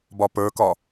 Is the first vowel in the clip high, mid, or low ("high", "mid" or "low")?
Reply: low